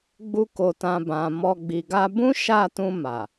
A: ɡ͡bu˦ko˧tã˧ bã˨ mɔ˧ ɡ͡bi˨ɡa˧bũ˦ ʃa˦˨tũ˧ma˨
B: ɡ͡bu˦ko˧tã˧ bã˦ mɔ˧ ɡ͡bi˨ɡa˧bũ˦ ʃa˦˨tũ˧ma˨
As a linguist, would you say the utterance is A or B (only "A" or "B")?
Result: A